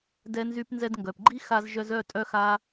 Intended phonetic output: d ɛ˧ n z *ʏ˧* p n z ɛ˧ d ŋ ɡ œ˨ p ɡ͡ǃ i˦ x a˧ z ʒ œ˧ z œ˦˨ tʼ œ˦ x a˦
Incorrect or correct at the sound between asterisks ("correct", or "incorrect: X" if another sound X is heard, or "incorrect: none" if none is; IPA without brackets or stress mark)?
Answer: incorrect: y˧